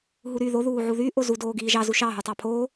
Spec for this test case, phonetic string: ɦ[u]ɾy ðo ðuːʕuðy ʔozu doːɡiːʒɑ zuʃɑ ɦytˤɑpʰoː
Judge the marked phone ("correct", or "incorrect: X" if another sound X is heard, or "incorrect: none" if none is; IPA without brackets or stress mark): correct